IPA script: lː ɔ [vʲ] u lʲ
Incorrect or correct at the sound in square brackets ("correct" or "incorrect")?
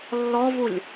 incorrect